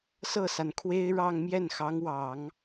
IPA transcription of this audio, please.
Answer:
s ɤ˥˩ s a˩ n kʰ w e˥ ɪ̯ ɻ ɑ˥˧ ŋ m j ɛ˥˩ n x ɑ˧˥ ŋ w ɑ˨˩˦ ŋ

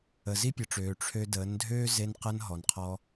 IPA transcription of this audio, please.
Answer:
ə˨ z i˦ pʲ ə˨ ʈ͡ʂ øː˨ ʈ͡ʂʰ ø˧ d əː˨˦ n dʱ øː˦ z e˧ n q ə˧ n ɦ ɔ˨ n qʰ ɔ˧

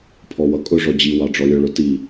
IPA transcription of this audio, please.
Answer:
pʰ ɔ w ʌ kʼ ʊ ʐ ɔ d͡ʑ i w ɑ ɖ͡ʐ ɔ lʲ ɔ ɭ ʊ t i

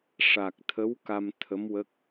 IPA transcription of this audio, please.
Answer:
ʂ a˨˩ k̚ t̪ʰ ə˧˥ w k a˧ m t̪ʰ ə˧˥ m w ə˦˥ k̚

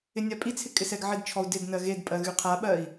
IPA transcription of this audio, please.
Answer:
ɪ nʲ a pʼ i t͡sʰ ɪ kʼ ɪ s ɛ ɡ ʕ ɪ d t͡ʃʰ ɔ u̯ d ɪ d n ɜ ɣ e d pʼ ɜ ɣ y qʰ a ɓ ɜ i̯

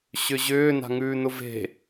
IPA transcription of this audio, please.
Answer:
ɕ ʏ ʑ ʏː n a̤ ŋ ʉː n ʊ v e̤

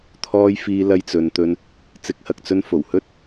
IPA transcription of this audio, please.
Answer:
t̪ʰ ɔː˧ j f iː˧ l ɐ˧ j t͡s ɵ˨ n t̪ ɵ˧ n | t͡s ɪ˨˥ k̚ h ɐ˨ k̚ t͡s ɵ˧ n f o˨˩ w h ɵ˥ t̚

